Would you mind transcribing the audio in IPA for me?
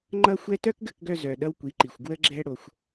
ŋ͡ǃ ʌ˦ xʷ ɛ˦ t œ˦ k ɡ ə˦˨ k ɡ œ˧ z œ˨ ɗ ʌ˦ w kʷ i˨˦ ǃ i˨ xʷ ɡ w ə˦ ɡ͡ǁ ɛ˦ ɽ o˧ xʷ

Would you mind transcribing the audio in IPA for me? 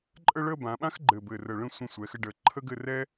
ǃʼ ə˥˧ ɭ ə˥˧ b ã˩˧ ɓ ã˥ x ɡ͡ǃ ɘ˧˩ b ɘ˧˩ r ə˧˩ ɭ ə̃˥˧ sʷ ə̃˧ sʷ ɛ˩˧ x ɘ˧ ɖ ə˧˩ ǃʰ ə˥ ɡ ɘ˥˧ r ɛ˥

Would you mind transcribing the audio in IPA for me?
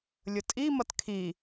lʲ ʊ tʼ i m ʌ t kʰ i

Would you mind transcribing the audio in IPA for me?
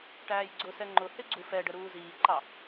ʈ æː j ɡ͡ǀ ʊ s ɛ ŋ͡ǃ ʊ h ɪ ɡ͡ǀ u f ɛ ɖ ə ɾ uː z iː ǃ ɑ

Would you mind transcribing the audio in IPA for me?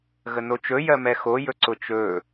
ɣ ə n o t͡ʃ ɵ j ɜ m ɛ x o j ɵ ǀ ʊ t͡ʃ ɵ

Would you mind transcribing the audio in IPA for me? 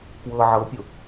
k w ɤ ʕ ɤ pʲ ʊ

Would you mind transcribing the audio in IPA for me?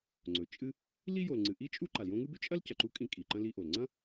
ŋ͡ǀ ɵ˩ t͡ʃʼ ɨ˥ | l i˥ j o˨ l ŋ͡ǀ ɨ˨ ʔ i˥ t͡ʃʼ u˥ ǃ a˩ l j õ˦ ŋ ɨ˥ b ʉ˥ t͡ʃʼ ɐ˥ l c ɐ˨ ǃ u˥ kʼ ĩ˦ kʼ i˩ ǃ ɐ̃˦ l i˦ ʔ o˩ l ŋ͡ǀ ɐ̃˥

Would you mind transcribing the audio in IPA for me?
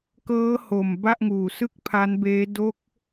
k ɤː˦˥ h o˨˩ m b a˥˩ ʔ ŋ uː˨˩ s ɯ˥˩ k̚ pʰ a˦˥ n b eː˦˥ d o˦˥ k̚

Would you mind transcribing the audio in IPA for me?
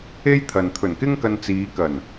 e˥ j t̪ʰ ɐ˨ n t̪ʰ ɵ˨˩ n k ɪ˥ ŋ k ɐ˧ n t͡s iː˨˧ k ɐ˨˩ n

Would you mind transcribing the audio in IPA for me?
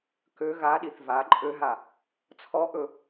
k ø ɣ a ɗ i θ v a ǃʼ ø ɦ a | t͡sʰ ɔ ʔ ɵ

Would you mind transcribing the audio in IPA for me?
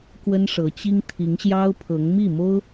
k w ə˥ n ʂ ɤ˧˥ t͡ɕ i˥ ŋ t̪ʰ i˧˥ ŋ ɕ j ɑ˥ ʊ̯ pʰ ɤ˧˥ ŋ m i˥˩ m o˥ ʊ̯

